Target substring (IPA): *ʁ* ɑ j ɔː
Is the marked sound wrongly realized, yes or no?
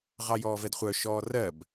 no